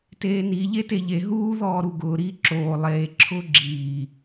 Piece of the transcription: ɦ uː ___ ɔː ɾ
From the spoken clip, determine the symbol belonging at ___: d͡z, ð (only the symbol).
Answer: ð